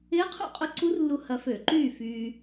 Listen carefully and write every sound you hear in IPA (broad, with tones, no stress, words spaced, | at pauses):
ɪː˧˥qʰṵ˥˨qʼʊ˧˥ ǀu˧˥rlːu˧ hɐ˧fø˧˩˧ǃyː˥˨ fyː˧